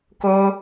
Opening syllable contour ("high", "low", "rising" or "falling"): high